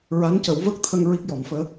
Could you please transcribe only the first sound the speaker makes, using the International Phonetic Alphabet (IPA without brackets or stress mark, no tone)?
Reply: ɹ